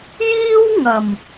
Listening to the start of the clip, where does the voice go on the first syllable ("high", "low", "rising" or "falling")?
high